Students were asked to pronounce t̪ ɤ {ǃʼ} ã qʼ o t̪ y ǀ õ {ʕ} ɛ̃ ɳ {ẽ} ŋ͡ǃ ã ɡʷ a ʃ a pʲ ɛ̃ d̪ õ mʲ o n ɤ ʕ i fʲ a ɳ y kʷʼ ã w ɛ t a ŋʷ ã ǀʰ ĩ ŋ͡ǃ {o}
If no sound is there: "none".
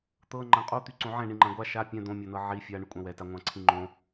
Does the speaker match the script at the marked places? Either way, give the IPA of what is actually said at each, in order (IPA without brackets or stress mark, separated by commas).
ŋ͡ǃ, ʕ, ĩ, õ